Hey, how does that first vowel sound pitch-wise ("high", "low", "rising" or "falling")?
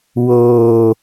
low